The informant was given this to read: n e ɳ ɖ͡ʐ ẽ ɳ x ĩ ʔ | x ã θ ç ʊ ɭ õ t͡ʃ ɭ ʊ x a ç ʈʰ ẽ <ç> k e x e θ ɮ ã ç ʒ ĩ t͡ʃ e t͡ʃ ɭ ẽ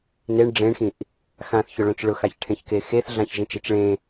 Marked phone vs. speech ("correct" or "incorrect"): correct